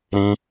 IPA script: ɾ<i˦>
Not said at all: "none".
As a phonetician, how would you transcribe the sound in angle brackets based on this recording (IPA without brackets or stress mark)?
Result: ĩ˦